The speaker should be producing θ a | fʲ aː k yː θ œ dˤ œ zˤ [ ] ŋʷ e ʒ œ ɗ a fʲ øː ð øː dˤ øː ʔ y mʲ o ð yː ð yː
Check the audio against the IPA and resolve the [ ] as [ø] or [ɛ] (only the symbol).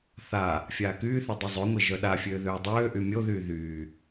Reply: ø